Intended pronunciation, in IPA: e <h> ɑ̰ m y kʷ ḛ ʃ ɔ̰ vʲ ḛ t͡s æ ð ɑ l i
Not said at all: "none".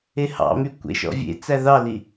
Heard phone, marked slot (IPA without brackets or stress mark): h